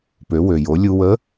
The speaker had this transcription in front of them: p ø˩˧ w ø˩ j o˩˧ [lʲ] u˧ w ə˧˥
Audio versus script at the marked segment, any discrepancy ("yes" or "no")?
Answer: no